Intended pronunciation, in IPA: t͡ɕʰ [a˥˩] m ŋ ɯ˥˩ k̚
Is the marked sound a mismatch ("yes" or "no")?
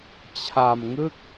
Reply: yes